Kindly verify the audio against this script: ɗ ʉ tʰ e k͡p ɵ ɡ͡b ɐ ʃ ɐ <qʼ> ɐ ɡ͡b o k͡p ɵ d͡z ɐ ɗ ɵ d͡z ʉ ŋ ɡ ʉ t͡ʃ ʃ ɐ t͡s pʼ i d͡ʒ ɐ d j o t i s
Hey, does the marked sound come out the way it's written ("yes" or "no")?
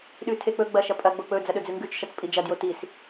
no